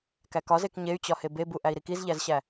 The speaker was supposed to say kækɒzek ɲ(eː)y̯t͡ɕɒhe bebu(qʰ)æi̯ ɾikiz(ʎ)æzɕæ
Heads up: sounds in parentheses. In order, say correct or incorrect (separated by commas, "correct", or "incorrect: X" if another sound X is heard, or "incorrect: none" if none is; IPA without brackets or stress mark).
incorrect: e, incorrect: ʔ, correct